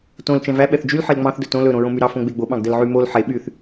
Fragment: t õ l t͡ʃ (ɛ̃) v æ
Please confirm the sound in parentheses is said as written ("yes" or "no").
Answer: yes